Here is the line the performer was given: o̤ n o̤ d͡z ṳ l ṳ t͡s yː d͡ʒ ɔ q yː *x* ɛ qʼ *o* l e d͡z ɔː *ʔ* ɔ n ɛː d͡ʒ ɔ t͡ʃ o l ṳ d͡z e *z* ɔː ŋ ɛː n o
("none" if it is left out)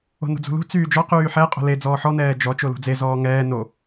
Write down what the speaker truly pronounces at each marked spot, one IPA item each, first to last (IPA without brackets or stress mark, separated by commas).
ħ, o̤, ħ, z